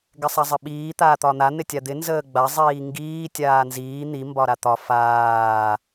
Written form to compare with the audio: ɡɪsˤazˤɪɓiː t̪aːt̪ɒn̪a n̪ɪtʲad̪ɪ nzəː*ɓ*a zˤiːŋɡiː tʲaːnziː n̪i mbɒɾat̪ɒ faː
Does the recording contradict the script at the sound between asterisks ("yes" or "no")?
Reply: yes